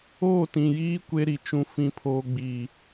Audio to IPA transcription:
oː˦˨ t ĩ˨ j iː˦ kʷ e˦ ɾ i˨ t͡ʃ ũ˦ f ĩ˦ pʰ oː˦ ɡ͡b iː˨

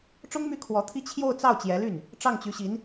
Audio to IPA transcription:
ʈ͡ʂ ʊ˥ ŋ m y˥˩ kʰ w ɔ˧˥ t̪ʰ i˥ t͡ɕʰ j o˥˧ ʊ̯ t͡s ɑ˥˩ ʊ̯ t͡ɕ j ɛ˧˥ l y˥˩ n | ʈ͡ʂ ɑ˥˩ ŋ t͡ɕ y˧˥ ɕ i˧˥ n

